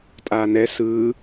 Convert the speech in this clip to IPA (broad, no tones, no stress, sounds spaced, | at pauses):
tʼ aː n ɛ s ɯː